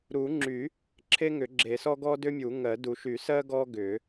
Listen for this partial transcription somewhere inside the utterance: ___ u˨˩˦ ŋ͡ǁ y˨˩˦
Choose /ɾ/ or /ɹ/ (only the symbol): ɾ